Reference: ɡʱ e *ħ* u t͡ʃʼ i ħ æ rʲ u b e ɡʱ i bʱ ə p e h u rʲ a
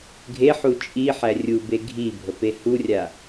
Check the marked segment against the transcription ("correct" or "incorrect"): correct